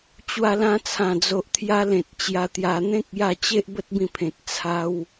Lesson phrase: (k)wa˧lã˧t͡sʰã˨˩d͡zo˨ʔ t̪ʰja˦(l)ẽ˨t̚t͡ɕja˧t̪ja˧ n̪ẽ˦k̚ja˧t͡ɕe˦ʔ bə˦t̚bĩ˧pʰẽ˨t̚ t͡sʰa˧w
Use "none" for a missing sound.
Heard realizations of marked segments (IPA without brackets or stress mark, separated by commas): t͡ɕ, l